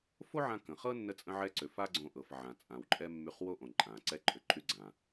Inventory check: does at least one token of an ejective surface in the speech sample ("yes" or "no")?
yes